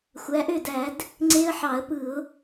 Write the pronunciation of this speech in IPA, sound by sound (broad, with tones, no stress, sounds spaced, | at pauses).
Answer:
xʷ æ˩˧ ʔ ø˥˩ d æ˧˩˧ d | ŋ͡ǀ e˦˥ ə̯ ħ ɑ˧˩˧ ə̯ p ɯ˧˩˧ ʊ̯